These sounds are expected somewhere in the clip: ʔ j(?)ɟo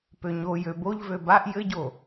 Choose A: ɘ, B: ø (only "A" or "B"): A